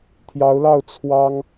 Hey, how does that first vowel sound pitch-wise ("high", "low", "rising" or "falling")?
rising